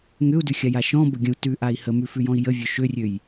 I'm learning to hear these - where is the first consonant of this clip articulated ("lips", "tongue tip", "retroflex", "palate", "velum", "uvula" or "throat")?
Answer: velum